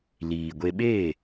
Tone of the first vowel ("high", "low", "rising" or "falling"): low